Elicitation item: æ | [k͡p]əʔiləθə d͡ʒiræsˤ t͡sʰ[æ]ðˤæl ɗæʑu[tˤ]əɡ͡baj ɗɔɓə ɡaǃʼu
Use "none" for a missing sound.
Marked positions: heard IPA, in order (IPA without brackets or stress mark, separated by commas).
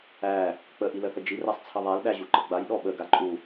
k͡p, ə, ǃ